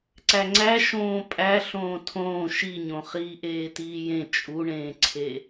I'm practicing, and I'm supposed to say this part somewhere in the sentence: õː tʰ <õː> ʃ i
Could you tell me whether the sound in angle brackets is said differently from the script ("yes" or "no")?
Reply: no